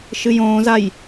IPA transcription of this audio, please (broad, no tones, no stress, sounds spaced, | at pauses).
ʃ ɨ j õː z a j